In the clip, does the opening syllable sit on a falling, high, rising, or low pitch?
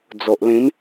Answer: low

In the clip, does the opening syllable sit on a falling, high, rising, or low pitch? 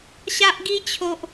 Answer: high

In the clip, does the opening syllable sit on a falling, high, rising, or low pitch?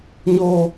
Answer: high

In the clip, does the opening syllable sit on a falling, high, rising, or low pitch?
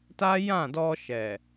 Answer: high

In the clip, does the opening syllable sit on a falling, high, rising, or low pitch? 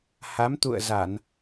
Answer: rising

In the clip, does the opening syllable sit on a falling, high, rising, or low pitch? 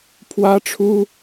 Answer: high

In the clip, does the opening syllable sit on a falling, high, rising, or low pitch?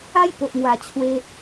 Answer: high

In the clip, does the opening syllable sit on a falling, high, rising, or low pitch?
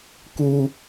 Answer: low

